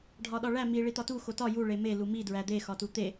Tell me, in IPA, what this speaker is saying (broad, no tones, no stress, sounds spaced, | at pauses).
ɖʱ ɒ ɗ ɒ ɭ æ m i ɭ i t̪ ɒ t u x o t ɒ j u ɭ e m e l u m i d ɹ æ d̪ e x ɒ t u t̪ e